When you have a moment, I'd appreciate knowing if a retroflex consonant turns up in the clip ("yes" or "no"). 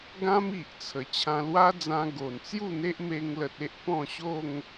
no